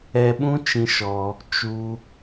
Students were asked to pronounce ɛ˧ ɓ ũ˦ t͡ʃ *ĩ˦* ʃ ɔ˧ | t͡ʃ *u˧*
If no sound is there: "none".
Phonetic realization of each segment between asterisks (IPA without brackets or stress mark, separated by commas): ĩ˦, u˧